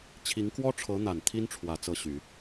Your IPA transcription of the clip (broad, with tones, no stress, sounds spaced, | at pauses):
t͡ɕʰ i˧˥ ŋ k w ɔ˥ ʈ͡ʂʰ ɤ˧˥ n̪ a˨˩ n t̪ʰ i˥ n ʈ͡ʂʰ w ä˨˩ t͡s ɤ˥˩ ɕ y˨˩˦